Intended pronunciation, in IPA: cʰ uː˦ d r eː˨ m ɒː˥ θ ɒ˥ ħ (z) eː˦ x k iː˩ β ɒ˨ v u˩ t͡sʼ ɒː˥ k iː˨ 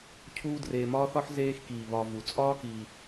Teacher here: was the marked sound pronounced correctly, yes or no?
yes